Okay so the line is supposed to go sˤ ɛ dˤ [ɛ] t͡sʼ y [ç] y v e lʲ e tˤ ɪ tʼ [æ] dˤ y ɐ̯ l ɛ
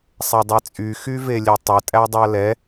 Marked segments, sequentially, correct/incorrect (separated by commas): correct, incorrect, correct